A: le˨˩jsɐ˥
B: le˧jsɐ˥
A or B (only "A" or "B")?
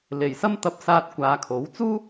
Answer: A